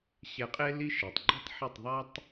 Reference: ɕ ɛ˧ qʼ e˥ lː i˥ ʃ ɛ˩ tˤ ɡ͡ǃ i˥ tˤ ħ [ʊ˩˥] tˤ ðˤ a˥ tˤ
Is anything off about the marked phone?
yes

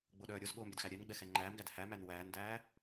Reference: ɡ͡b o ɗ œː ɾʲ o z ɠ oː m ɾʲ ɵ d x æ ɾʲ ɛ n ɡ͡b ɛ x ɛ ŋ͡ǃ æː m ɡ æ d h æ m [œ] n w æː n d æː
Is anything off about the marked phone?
yes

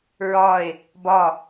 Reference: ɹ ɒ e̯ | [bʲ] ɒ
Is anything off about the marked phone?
yes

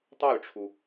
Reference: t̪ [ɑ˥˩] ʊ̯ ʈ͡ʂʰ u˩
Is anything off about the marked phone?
no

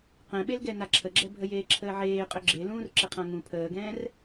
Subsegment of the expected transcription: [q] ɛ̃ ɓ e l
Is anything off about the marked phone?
no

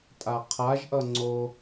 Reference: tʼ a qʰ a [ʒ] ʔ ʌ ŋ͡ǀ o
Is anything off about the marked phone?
no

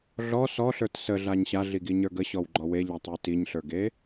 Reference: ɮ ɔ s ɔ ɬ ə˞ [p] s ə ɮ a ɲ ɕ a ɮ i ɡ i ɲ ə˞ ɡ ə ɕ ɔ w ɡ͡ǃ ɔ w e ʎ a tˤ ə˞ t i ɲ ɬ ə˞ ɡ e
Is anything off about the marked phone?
yes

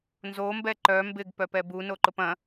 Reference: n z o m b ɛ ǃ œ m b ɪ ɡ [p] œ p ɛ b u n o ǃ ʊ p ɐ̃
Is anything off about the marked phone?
no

